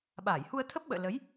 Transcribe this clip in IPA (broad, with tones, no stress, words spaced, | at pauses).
ɓaː˧˩jhu˧ə̯t̪ʰə˦˥p̚ɓə̰ː˧˨ lə˨˦j